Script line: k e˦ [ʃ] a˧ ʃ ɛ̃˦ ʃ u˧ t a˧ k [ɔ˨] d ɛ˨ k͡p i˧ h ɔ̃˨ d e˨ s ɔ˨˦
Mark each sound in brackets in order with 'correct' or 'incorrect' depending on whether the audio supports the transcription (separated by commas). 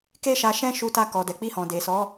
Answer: correct, correct